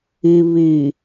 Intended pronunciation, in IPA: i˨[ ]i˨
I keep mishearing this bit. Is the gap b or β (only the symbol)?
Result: β